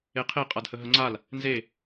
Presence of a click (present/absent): present